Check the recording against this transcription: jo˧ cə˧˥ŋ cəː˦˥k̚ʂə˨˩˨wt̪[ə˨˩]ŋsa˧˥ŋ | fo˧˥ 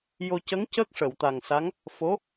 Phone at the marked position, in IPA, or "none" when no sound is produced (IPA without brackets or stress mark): a˨˩